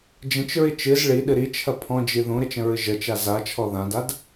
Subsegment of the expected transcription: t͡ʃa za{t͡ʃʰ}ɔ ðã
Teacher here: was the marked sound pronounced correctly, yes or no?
yes